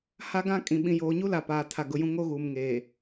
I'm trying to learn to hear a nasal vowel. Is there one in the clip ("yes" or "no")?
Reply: yes